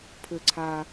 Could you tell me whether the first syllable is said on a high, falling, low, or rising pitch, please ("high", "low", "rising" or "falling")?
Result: low